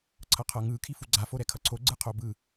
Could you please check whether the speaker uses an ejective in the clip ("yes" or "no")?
no